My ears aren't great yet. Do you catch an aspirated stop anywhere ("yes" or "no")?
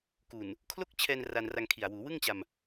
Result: yes